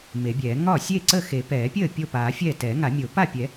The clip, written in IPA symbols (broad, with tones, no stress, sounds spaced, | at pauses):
m e˨˩˦ bʲ ɛː˨˩˦ ŋ ɒ˥˩ sʲ eː˥˩ ǀ ə˥˩ x e˨˩˦ p ɛː˨˩˦ pʲ əː˥˩ pʲ o˥˩ p aː˨˩˦ fʲ ɛː˥˩ t ɛː˨˩˦ ŋ a˨˩˦ mʲ o˨˩˦ p a˥˩ pʲ ɛ˨˩˦